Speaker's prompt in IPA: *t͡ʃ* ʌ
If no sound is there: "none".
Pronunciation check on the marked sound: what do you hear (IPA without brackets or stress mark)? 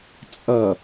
t͡sʼ